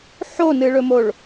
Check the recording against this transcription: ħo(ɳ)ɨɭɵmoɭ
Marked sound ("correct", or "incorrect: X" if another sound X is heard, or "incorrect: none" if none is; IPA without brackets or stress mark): incorrect: n